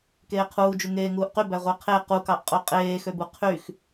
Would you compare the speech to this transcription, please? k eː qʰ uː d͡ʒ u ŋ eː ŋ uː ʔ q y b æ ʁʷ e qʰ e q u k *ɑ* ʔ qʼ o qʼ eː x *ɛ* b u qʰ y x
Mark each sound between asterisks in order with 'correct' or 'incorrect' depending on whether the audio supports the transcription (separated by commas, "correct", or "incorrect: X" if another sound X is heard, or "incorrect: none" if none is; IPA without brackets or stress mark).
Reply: correct, incorrect: ø